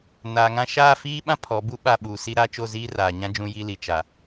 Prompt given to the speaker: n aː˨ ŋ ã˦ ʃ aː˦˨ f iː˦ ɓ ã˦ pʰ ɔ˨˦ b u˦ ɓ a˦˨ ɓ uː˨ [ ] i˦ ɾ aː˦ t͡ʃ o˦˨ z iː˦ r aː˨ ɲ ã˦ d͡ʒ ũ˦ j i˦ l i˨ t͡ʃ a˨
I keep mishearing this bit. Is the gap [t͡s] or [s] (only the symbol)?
s